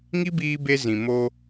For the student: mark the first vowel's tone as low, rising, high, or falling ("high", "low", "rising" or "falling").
high